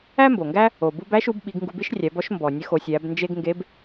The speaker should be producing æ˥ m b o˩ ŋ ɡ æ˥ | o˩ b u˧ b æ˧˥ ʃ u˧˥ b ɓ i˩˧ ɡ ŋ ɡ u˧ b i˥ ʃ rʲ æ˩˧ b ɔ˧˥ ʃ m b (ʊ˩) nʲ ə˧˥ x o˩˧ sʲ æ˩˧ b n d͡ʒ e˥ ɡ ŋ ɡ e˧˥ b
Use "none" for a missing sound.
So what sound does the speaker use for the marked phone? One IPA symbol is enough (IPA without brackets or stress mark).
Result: ɔ˩